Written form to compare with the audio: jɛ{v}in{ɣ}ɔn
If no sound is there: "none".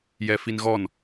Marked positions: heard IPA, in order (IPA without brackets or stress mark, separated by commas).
f, ɣ